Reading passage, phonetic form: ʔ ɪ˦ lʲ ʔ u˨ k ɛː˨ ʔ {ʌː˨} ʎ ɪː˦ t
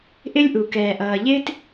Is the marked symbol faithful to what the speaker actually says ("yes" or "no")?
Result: yes